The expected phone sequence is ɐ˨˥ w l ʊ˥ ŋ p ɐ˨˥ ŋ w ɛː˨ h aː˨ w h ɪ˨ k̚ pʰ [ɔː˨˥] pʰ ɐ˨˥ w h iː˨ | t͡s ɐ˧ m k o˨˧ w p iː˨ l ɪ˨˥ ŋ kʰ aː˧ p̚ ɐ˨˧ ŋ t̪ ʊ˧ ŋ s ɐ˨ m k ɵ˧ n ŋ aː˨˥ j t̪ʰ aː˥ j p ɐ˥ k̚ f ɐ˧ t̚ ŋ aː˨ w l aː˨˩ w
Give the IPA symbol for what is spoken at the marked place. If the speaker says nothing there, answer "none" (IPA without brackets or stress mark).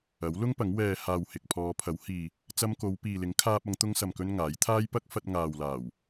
ɔː˨˧